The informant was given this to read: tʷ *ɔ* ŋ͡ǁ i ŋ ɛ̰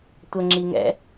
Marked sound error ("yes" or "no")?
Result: yes